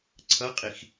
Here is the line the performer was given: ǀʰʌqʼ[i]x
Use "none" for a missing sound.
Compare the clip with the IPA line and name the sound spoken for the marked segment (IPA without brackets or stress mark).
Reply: i